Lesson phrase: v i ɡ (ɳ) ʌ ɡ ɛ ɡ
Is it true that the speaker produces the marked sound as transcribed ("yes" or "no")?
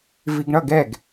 yes